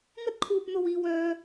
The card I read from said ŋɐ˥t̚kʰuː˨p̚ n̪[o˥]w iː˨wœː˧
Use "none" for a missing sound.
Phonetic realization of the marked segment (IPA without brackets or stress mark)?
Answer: o˨